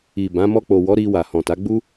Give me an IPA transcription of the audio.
i˨bã˨˦ mɔ˧k͡po˨wɔ˨˦ ɾi˧ wa˨hɔ̃˨ta˨˦ ɡ͡bu˦

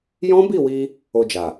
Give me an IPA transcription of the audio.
jɔ̃˦bi˦˨wi˧ | o˧d͡ʒa˨

